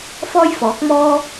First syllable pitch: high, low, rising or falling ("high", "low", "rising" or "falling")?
high